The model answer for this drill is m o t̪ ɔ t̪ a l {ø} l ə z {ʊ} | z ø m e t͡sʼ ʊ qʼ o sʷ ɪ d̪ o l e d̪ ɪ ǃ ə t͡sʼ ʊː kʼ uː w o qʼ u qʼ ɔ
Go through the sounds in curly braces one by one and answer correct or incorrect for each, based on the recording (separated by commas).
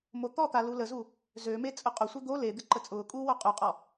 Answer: incorrect, incorrect